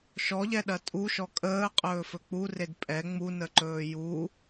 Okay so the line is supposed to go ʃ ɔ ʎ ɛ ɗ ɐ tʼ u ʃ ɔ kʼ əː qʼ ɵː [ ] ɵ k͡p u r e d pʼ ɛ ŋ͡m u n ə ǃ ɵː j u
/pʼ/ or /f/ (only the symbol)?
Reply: f